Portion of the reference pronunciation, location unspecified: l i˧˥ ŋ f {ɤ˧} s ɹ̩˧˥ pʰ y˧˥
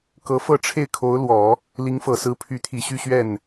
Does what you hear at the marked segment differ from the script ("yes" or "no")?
yes